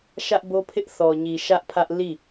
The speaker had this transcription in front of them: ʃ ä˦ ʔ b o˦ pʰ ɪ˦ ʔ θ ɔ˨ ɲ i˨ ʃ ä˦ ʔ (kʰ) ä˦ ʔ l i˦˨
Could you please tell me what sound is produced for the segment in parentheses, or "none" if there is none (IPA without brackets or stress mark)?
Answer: pʰ